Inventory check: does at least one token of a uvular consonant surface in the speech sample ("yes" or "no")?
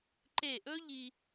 no